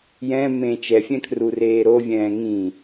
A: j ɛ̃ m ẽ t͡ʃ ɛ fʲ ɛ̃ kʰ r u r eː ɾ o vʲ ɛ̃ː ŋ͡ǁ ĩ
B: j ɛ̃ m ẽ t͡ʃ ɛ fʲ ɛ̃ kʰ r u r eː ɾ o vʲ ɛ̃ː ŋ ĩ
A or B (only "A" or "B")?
B